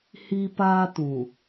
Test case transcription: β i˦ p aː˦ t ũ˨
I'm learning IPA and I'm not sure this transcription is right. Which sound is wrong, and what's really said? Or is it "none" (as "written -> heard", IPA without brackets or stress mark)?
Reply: β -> h